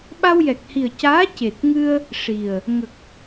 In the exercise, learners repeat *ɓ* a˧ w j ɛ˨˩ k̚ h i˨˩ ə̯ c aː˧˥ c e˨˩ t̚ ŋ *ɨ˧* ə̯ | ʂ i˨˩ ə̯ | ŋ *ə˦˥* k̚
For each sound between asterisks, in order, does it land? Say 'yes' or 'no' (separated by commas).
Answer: yes, yes, no